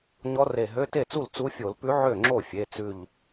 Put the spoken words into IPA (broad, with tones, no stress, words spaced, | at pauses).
ɲɔ˧˥re˧˩ɦø˧˥˧ te˥˩t͡su˥˩l t͡su˧˥fʲo˧˩˧lpʉ˧˥ ʕø˥˩ŋ͡ǁo˥˩fʲe˩˧˩ t͡sʉ˧˩ʎ